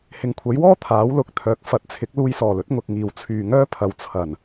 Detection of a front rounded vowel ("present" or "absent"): present